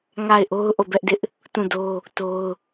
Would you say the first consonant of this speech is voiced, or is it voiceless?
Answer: voiced